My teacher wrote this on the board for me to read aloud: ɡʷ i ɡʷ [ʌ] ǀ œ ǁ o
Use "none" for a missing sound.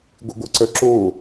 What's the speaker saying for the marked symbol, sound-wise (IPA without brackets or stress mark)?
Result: ʌ